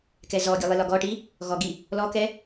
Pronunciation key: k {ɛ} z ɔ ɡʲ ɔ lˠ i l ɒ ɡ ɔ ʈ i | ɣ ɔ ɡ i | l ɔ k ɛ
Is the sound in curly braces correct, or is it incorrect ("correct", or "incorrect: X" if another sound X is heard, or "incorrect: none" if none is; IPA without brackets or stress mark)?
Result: correct